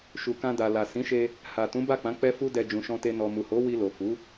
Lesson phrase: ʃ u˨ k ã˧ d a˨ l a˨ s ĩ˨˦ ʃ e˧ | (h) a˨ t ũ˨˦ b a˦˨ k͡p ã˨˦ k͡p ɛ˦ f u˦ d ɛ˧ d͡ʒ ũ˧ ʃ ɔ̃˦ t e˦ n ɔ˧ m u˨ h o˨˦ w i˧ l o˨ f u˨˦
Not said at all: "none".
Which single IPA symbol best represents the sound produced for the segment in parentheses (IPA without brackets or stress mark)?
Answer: h